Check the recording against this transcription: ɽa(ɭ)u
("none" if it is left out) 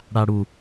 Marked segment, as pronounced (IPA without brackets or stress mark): ɽ